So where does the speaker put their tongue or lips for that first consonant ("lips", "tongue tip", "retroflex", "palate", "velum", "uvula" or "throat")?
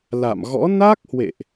tongue tip